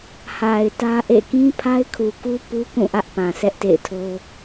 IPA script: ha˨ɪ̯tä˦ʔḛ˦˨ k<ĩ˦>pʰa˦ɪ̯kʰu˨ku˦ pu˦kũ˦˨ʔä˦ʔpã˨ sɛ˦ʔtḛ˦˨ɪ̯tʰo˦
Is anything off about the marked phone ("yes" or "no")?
no